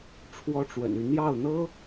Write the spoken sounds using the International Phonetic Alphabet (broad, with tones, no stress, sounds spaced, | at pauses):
ʈ͡ʂʰ w ɔ˥ ʈ͡ʂ w ə̰˨˩ n y˥˧ n̪ j ɑ˥˩ ʊ̯ n̪ ɤ˥